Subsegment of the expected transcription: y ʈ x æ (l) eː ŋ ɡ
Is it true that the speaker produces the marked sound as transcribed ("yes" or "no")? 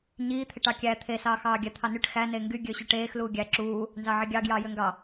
no